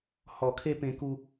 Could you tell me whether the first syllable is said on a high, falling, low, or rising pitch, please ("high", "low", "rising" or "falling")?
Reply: low